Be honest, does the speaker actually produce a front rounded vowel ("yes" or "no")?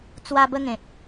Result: no